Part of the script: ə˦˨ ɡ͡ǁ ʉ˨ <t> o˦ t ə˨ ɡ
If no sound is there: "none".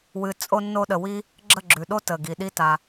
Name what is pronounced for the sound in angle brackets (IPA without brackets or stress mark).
ɗ